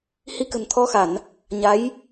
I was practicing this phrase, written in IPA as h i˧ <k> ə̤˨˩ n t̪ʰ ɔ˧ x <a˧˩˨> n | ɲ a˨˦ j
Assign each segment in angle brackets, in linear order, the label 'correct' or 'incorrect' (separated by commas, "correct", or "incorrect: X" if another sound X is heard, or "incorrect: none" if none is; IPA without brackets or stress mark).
correct, correct